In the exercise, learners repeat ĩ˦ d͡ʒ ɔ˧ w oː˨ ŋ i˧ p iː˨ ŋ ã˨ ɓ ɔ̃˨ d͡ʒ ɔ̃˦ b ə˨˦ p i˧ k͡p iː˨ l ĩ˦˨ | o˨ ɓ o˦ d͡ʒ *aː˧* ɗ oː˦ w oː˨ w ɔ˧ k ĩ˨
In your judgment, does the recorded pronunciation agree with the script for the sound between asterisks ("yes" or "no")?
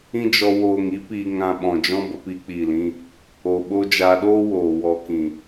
yes